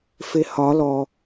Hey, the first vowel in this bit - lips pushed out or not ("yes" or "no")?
no